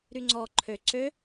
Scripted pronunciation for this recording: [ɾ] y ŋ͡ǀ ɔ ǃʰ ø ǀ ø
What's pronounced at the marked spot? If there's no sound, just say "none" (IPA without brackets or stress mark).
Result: ɾ